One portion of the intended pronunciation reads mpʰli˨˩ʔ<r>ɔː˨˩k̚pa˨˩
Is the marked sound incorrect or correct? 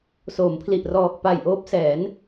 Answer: correct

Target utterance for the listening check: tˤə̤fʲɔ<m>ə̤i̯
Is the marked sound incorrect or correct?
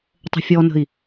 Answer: incorrect: n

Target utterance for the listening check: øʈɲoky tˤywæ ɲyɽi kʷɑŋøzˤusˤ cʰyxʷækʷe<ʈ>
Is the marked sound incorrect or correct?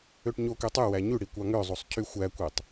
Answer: incorrect: tˤ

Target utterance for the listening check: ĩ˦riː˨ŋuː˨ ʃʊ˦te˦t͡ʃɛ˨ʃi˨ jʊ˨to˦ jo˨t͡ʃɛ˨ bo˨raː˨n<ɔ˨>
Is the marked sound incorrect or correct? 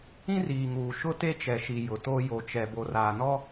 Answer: incorrect: ɔ˦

